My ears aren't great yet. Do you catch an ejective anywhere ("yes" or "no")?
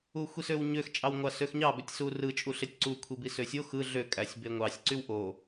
yes